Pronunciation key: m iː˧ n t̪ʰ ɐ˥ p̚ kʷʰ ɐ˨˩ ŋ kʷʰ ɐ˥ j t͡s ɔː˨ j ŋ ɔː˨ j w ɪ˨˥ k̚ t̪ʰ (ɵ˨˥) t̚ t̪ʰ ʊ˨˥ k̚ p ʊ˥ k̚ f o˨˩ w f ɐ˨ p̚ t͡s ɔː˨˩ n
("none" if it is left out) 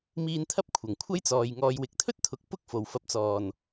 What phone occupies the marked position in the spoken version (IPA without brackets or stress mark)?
ɵ˥